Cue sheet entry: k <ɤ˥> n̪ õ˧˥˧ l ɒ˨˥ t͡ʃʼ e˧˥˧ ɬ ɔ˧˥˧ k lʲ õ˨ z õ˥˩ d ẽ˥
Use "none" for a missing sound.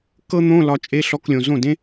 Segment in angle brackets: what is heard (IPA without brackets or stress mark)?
ɤ˥